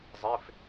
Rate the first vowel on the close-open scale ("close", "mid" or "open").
mid